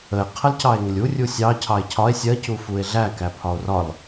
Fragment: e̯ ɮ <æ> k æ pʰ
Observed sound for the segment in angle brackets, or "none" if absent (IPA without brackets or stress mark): æ